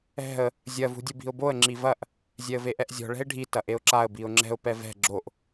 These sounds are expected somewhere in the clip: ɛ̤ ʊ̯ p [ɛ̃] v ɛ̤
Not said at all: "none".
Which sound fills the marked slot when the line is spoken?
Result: ɛ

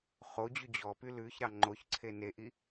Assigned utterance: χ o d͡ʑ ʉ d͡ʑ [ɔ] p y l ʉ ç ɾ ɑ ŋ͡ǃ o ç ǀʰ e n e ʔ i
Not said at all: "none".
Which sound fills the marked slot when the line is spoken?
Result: ɔ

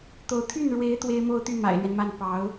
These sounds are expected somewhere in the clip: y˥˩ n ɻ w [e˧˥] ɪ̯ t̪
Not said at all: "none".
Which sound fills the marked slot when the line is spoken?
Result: e˧˥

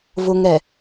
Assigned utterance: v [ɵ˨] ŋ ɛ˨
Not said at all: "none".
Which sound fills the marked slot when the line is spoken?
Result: ʊ˨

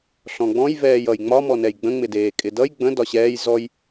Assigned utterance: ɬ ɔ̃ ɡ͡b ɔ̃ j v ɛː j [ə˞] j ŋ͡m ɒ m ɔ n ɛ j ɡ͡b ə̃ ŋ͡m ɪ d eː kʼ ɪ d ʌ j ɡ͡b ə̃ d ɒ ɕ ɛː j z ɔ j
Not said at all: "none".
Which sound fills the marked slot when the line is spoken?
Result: ʌ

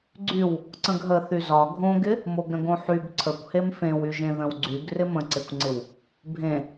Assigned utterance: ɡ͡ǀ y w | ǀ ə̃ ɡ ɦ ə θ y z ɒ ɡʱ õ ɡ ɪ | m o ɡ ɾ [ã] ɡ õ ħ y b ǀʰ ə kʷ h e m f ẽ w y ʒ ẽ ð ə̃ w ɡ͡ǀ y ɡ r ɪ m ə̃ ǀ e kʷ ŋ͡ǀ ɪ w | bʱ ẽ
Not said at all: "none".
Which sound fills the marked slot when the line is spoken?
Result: ə̃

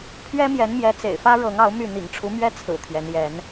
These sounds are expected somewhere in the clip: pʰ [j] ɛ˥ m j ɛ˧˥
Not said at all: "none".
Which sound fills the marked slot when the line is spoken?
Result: ɥ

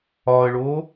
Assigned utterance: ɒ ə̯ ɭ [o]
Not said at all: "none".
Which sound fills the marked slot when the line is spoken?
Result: o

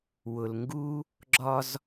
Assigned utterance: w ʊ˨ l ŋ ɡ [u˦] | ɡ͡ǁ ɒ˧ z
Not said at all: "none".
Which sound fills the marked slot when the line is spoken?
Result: u˦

